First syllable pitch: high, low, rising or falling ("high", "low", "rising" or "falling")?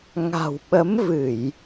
low